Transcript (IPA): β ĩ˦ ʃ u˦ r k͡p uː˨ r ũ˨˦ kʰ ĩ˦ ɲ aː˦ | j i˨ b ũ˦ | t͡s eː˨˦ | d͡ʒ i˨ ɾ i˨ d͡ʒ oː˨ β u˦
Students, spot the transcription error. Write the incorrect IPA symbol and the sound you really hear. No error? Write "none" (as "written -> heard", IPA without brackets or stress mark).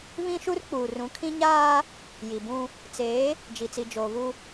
ɾ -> t͡s